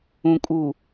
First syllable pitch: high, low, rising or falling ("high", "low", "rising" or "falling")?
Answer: low